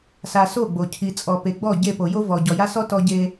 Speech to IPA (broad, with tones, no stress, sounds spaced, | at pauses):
s a˨ s o˦˨ ɡ͡b o˨ cʰ i˨ t͡sʼ ɔ˨ p e˨ ɡ͡b ɔ˦˨ ɟ e˦˨ p o˨ j o˦ v ɔ˨ ɟ ɔ˨ j a˦ s ɔ˦ t ɔ˦ ɟ e˦